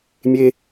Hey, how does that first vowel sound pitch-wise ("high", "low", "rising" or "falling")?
high